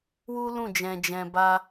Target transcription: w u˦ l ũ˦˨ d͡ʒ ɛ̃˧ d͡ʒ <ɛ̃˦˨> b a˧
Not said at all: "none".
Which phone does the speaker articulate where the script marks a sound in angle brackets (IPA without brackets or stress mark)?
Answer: ɛ̃˧